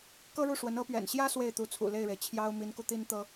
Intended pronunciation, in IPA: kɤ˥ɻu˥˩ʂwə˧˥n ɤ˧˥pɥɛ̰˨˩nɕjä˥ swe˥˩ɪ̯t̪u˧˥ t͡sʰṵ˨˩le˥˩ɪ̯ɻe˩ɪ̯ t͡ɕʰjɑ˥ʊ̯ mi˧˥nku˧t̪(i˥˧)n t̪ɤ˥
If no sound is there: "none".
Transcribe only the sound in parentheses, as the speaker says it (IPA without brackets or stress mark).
i˥